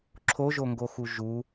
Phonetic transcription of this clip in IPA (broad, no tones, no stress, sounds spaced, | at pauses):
ǁʰ o ʒ o ŋ ɡ o x u ʒ u